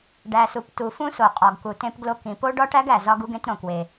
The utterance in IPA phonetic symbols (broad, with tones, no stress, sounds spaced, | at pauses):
ɖ æ˩ s u˩ p t u˩ f ũ˥ s o˩ qʼ ɒ˩ ɡ k u˩ t ẽ˥ p ɡ l o˥ k ĩ˩ p o˥ ɖ ɒ˥ ʈ æ˥ ɡ æ˩ z ɒ˥ ɡ u˥ ɡ ẽ˥ t ɾ õ˩ k w e˩